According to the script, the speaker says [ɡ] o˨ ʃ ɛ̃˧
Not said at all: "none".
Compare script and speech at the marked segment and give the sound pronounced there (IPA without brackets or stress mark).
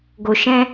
ɡ